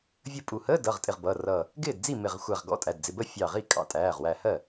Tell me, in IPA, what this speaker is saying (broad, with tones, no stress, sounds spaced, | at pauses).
vʲ ə˥˩ pʼ u˧˩ h əː˧˥˧ d ʌ˩˧˩ ʁ tʼ ɪ˧˩ ʁ b ʌː˩˧˩ r ʌː˧˩ | ɡ ɪː˥˩ d d͡z i˥˩ m ɪ˧˩ ʁ xʷ æ˧˩ ʁ ɡ ɔ̰˧˥˧ tʼ æ˩˧˩ d d͡z ɪ˩˧˩ b ə˥˩ fʲ ɑː˧˩ ʁ i˥˩ kʼ ɑ̰˧˩ tʼ æː˩˧˩ ʁ w æ˧˩ h ɜ˥˩